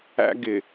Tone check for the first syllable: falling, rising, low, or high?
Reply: high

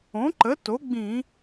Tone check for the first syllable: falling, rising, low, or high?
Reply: rising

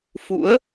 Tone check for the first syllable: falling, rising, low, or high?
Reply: rising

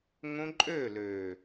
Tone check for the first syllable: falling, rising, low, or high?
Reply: high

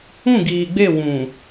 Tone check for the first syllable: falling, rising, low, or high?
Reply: falling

